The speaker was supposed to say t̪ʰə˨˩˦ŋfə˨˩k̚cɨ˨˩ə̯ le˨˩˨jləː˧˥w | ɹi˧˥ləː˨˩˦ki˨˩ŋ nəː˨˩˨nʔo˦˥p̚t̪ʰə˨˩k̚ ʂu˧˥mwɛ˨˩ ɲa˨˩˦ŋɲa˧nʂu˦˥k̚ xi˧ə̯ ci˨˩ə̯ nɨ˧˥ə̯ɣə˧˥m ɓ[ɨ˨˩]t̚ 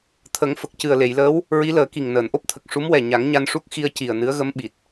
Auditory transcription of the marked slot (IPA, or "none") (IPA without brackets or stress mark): i˨˩